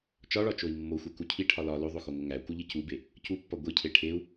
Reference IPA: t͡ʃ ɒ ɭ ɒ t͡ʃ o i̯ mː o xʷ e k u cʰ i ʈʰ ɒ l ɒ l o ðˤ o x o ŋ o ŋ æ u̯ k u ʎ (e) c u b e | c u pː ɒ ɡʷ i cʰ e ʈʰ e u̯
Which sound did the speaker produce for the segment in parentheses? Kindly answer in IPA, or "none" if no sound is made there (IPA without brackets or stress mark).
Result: i